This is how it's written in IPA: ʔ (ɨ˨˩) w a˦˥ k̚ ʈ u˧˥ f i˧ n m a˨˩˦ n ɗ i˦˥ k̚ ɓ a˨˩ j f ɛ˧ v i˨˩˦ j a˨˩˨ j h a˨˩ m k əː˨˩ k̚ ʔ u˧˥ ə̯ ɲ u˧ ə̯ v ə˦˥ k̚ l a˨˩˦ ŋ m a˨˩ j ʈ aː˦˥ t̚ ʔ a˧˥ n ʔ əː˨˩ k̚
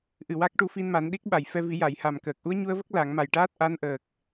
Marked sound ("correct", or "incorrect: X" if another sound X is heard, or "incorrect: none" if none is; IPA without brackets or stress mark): correct